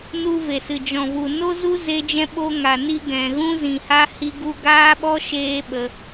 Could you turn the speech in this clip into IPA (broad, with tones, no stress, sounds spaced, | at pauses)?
n u˧ v e˨ s ɨ˨ d͡ʒ ɔ̃˨ v u˨ n o˦ z u˦ z e˧ d͡ʒ ɛ̃˧ ɓ o˧ ŋ a˨ n i˧ ɡ ɛ̃˨ ɣ ũ˧ z ĩ˨ h a˧ h i˧ ɡ u˧ ɡ aː˦ ɓ ɔ˦ ʃ eː˦ ɓ ə˧